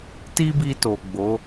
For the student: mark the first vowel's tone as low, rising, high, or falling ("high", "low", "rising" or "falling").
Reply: high